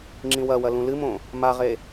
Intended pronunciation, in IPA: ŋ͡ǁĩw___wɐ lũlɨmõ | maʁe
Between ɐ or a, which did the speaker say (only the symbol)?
ɐ